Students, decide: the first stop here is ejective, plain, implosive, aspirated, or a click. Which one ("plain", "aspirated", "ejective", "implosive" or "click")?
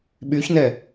implosive